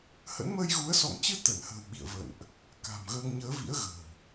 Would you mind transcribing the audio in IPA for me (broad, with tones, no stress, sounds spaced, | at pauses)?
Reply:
h ə̰˧˥ n m əː˧ j ɣ u˨˦ ə̯ s ɔ̰˧˨ ŋ t͡ɕ ɨ˧ t̪ ə˧˩ n h ə̤ː˨˩ w ɓ ḭ˧˨ ə̯ v ə̰˧˨ n ʔ | k a̤˨˩ m ɣ əː˧ ŋ ɲ əː˨˦ v ḭ˧˥ ə̯ ɣ ə̤ː˨˩ w